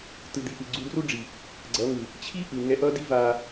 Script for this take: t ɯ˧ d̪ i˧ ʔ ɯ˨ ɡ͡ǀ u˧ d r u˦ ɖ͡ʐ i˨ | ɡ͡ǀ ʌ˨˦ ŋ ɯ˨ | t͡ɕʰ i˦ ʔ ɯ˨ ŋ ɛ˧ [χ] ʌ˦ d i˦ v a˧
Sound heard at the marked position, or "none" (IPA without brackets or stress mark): ʔ